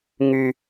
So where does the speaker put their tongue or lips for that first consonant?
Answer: velum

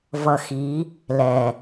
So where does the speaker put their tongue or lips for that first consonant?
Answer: lips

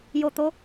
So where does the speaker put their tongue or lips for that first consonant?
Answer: palate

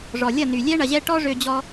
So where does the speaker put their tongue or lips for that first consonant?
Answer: retroflex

